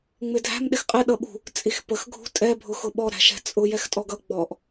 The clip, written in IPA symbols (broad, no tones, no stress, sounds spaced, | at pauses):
ŋ͡m ɪ dʱ æ̤ m ɗ ɪ x qʼ ɪ ɗ ʌ ɓ ṳ | t͡sʼ i x p ə x ɡʱ ṳ tʼ ɛ bʱ ʊ x ʊ ɓ ɔ ɾ æ̤ ʃ ɛ̤ t͡sʼ ʊ j ɛ x tʼ ɔ ɡ ʌ ɡ͡b ɔ ʔ